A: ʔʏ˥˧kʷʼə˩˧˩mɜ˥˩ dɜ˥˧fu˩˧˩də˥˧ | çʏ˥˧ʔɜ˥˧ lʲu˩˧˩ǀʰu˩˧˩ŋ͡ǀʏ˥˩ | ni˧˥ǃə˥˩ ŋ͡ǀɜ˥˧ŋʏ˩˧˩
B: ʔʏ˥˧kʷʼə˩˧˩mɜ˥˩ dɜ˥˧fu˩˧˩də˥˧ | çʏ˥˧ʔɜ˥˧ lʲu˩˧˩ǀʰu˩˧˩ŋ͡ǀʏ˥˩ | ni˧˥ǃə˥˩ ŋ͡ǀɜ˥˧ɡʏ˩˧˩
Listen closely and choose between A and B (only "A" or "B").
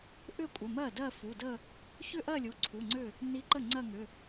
A